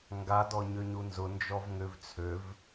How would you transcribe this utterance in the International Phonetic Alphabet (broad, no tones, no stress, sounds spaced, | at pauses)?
ŋ ɡ a d ɔ ɲ ø ɲ u n z ʊ n d͡ʒ ɔ v ŋ ʏ v t͡sʰ ø v